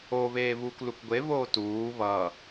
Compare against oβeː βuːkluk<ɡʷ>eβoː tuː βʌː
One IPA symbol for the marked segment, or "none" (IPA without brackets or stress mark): ɡʷ